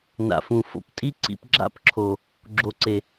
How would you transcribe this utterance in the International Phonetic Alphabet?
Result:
n a̰˨ f ũ˨ f o̰˧ p tʼ i˦ ǀ ḭ˧ p ɡ͡ǁ a̰˦ p ǁʰ o˨ | ɡ͡ǁ o˨ ǀ e˨

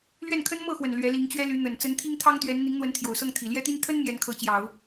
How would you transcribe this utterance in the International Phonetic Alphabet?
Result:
l ɥ ɛ˥˩ n kʰ ə˥ n m ɤ˥˩ x w ə˨˩ n l ɥ ɛ˧˥ l i˧˥ ŋ t͡ɕ ɥ ɛ˥ l y˧˥ n̪ ə˨˩ n t͡s ə˧˥ n t̪ʰ i˥ ŋ t̪ʰ ɑ˥ ŋ t̪ ɥ ɛ˧˥ n n̪ i˧˥ ŋ n̪ w ə˧˥ n t̪ʰ j o˨˩ ʊ̯ s ɤ˥˩ ŋ t̪ʰ i˨˩ l j ɛ˥ t̪ i˥ n t̪ʰ ə˥ n m j ɛ˧˥ n kʰ ɤ˧˥ t͡ɕ j ɑ˨˩˦ ʊ̯

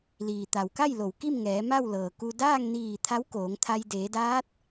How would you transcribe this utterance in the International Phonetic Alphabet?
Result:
l iː˩ t̪ a˩ w k a˥˨ j l o˩ w k i˥˨ m ŋ ɛː˩˧ m a˥˨ w l ɤː˩ k u˧ d aː˥˨ ŋ n iː˧˩ t̪ʰ a˧˥ w k oː˩˧ ŋ t̪ʰ a˧ j d eː˩˧ d aː˧˥ t̚

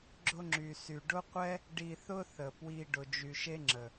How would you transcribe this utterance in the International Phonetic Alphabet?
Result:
ɡ͡ǁ ʊ˧ ŋ͡ǁ y˨ s y˨ ɖ ʊ˦ qʷ ɛ˦ | ɖ i˨ θ ʊ˧ θ ə˨ p w i˧ ɖ ʊ˨ d͡ʒ y˨ ʃ e˦ ŋ͡ǁ ə˨

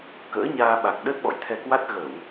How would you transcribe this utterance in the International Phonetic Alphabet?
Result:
k ə̰ː˧˥ ɲ aː˧ ɓ a˨˩ k̚ ɗ ə˦˥ t̚ ɓ ɔ̰˧˨ j t̪ʰ ɛ˧ k w a˦˥ t̚ ɣ ə˧˩˨ w

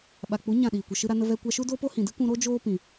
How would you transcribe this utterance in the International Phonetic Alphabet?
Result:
ɓ a˨ k͡p u˨˦ ɲ ã˦˨ ɗ iː˨ kʷ ə˨ ʃ ɨ˧ ɾ a˧ n ə˧ v ɛ˧ kʷ a˧ ʃ u˦ d oː˦ p o˦ h ĩ˨ d ɨ˦ kʷ ũ˧ ɾ oː˦ d͡ʒ oː˦ p ĩ˨

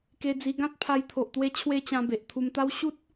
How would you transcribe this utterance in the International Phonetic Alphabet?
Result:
k e˧ d͡z i˧ ɡ ã˦ t̚ pʰ a˧ j t̪ʰ o˨ ʔ t̪ w e˧ t͡ɕʰ w e˧ t͡ɕ ã˧ b e˨ ʔ t̪ʰ u˧ m t̪ a˦ w ɕ u˦ t̚

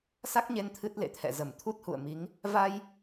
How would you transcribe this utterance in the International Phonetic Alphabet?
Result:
s a˦˥ k̚ ɲ e˧ n t̪ʰ ɨ˦˥ t̚ l ḛ˧˨ t̪ʰ ɛ̰˧˨ z ə˧˩ m t̪ʰ u˦˥ t̚ h ṵ˧˨ ə̯ m i˨˦ ŋ | v a˧ j

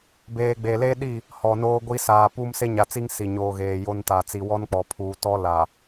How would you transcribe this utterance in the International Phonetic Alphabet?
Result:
b eː˨ ɡ͡b e˨ l e˦ ɗ i˦˨ | h ɔ˨ n oː˦ ɡʷ i˦ s aː˨ p u˦ m s e˦ ɲ a˨ t͡s i˦ ŋ s i˨ ɲ oː˨ ɣ eː˨ j o˦ n t a˨ t͡s i˨ w ɔ˦ n k͡p ɔ˨ pʰ uː˨ t ɔ˦ l a˨

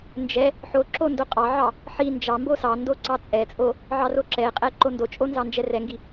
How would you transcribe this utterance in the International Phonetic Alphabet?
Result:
n d͡ʒ ɛ | ħ o ǁ o n d o qʼ ɑ ʕ ɑ | ħ i n d͡ʒ ɑ m b o s ɑ n d o ǀ ɑ t͡sʼ ɛ t͡sʼ o | ʕ ɑ r o ǁ ɛ qʼ ɛ ǃ o n d o t͡ʃʼ o n z ɑ n d͡ʒ ɛ r ɛ ŋ ɡ i

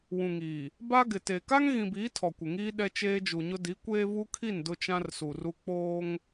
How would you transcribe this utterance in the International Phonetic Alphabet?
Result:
w ũ˨ ŋ iː˨ | b a˦ ɡ ɪ˨ t e˨ k a˦ ŋ ɣ ĩ˨ b iː˨˦ tʰ ɔ˨ kʷ ɪ˨ ŋ iː˦ ɗ ɛ˦ t͡ʃ eː˦ d͡ʒ u˨ ɲ ʊ˦ d i˨˦ kʷ eː˦ v u˦ kʰ i˦˨ n d ʊ˦ t͡ʃ ã˦ r s u˨ r u˦ k͡p oː˦ ŋ

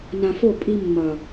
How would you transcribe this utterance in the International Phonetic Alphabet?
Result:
n ã˨ f o˦˨ pʼ i˦ mː ʌ˨

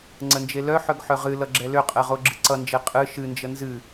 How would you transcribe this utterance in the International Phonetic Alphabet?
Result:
ŋ͡ǀ ə n d͡ʒ e l œ ħ œ ɡ ħ œ ʁ ɨ l ʌ ɡ͡ǁ ɛ l ʏ qʼ ɛ ʁ o ɡ͡ǁ ɨ ǀ ʌ n d͡ʒ e qʼ ɨ ʃ ɨ n d͡ʒ ə n z ɨ

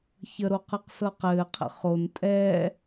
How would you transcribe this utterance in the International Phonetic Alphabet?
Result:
ç ə ɾ o q ɯ q s ɤ q ɘː qʰ ə̰ χ o n tʼ ɛː

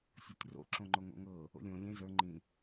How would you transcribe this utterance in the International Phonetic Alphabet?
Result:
sʲ o tʲ r o̰ ǁ õ ŋ͡ǃ o ŋ o̰ ŋ ɤ | o̰ lʲ õ lʲ ẽ z ə˞ ŋ͡ǃ ĩ

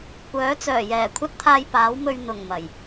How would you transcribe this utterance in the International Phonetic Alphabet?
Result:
kʷ œː˨˥ t͡s œː˨˩ j ɛː˨˩ kʷʰ ɐ˥ t̚ t̪ʰ aː˧ j p aː˨˥ w m ɵ˧ ɥ n̪ ʊ˨˩ ŋ m ɐ˨˩ j

